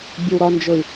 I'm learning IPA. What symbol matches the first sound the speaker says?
bʲ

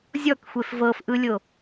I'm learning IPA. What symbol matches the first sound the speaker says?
zʲ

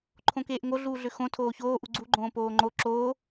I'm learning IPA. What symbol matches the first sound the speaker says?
ǃʰ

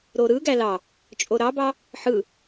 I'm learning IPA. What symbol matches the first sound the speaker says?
ɾ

